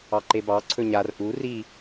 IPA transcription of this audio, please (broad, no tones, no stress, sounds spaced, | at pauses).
ɑ ǃ e b ɑ ǀʰ ɵ ɲ a r ʔ u r i